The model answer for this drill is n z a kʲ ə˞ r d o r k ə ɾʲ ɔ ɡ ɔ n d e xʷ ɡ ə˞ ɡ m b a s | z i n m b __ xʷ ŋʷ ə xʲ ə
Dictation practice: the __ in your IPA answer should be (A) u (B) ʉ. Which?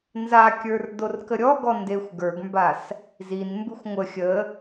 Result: B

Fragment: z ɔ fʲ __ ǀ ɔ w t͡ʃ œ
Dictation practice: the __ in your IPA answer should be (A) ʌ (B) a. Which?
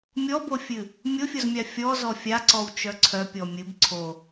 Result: B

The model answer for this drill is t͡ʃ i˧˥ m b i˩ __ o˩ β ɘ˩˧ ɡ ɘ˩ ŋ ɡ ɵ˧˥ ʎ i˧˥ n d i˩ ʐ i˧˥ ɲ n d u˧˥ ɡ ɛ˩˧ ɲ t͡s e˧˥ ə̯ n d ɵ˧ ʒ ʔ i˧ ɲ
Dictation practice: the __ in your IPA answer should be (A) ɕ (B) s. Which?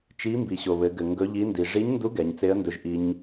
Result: A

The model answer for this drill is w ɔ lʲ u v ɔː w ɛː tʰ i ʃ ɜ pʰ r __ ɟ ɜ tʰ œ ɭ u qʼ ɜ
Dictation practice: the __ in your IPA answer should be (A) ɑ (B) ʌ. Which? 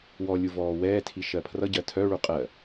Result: B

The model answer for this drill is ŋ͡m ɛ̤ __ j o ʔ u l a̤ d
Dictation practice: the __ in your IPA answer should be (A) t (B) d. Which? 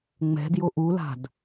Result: B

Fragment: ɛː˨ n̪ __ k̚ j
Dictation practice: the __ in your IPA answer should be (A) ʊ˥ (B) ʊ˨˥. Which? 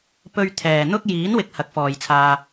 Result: A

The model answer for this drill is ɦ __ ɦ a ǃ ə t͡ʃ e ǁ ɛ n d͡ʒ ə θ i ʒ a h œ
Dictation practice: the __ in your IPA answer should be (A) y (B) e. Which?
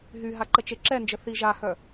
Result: A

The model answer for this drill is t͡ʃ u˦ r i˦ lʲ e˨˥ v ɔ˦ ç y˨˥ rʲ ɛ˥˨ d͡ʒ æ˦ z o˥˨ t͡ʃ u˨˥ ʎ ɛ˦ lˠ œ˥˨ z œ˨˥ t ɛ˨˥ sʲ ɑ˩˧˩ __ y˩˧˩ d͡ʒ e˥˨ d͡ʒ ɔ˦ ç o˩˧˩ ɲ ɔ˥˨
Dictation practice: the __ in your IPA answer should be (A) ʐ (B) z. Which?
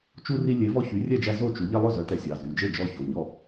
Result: B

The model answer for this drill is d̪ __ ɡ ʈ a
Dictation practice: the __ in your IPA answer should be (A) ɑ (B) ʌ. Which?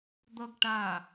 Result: B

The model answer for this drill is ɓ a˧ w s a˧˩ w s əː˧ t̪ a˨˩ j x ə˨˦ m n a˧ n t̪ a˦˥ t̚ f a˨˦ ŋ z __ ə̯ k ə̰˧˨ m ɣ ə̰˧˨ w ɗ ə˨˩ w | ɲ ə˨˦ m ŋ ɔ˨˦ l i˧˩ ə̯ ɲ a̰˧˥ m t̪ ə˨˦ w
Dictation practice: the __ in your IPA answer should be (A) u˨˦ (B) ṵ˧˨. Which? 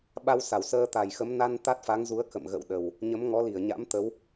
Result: A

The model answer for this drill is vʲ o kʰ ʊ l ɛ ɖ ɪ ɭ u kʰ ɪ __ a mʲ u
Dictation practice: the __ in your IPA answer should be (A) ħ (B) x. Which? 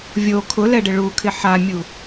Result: A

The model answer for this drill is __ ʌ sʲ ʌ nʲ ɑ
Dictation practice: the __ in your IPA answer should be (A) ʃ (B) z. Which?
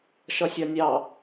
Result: A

